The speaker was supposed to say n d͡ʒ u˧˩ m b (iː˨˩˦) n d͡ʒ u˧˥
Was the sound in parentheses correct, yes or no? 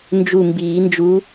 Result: yes